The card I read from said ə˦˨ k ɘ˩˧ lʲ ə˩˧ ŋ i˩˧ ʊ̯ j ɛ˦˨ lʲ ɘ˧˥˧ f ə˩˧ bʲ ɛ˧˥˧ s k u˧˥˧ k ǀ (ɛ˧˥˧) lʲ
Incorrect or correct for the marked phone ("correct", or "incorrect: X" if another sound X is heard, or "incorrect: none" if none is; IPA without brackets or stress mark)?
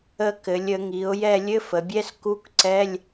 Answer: correct